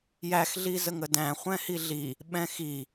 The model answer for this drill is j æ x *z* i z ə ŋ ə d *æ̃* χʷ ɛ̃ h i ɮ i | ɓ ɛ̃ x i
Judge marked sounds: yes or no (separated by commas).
no, yes